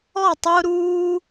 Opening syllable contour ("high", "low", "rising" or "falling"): falling